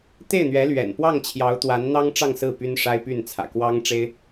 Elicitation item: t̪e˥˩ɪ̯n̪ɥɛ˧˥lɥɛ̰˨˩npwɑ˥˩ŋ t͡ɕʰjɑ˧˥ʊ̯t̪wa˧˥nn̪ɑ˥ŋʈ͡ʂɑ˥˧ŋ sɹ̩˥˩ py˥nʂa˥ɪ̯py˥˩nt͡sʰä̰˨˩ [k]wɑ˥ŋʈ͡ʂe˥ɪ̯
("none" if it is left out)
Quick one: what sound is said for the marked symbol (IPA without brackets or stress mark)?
k